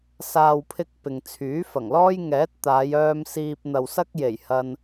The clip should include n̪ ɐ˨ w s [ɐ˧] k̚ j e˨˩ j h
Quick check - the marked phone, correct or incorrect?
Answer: incorrect